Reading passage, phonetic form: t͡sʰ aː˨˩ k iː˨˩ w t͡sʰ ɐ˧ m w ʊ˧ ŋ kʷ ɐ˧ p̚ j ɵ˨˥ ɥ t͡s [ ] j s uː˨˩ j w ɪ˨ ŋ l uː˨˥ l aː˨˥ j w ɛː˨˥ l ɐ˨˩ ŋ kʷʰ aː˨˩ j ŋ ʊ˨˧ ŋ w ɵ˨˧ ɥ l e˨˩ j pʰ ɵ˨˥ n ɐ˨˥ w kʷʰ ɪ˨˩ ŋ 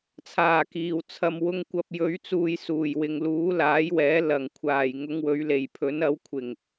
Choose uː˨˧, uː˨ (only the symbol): uː˨